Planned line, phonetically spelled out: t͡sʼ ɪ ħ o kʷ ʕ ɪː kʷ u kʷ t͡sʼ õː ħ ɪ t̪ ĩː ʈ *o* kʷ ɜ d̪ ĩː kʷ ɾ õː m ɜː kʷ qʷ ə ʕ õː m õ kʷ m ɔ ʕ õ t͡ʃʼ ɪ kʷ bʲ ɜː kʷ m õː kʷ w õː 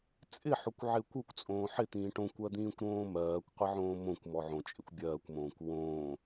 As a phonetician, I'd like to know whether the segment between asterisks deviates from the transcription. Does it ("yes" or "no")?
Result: yes